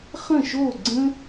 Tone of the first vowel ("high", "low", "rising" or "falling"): falling